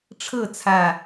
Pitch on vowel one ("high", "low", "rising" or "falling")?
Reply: falling